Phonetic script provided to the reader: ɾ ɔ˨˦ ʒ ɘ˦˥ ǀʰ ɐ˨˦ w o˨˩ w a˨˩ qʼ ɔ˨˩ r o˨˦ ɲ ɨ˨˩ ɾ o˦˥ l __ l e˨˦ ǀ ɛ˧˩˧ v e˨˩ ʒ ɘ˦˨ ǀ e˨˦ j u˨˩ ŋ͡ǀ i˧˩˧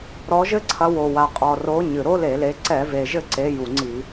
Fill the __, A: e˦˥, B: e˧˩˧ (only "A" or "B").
B